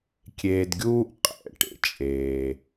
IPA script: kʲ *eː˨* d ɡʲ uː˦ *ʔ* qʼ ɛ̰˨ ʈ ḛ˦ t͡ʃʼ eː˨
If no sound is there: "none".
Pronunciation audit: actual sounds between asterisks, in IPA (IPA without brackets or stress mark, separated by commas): eː˨, ʔ